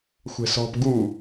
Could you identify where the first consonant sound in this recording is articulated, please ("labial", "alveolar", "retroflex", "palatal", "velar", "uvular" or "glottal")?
velar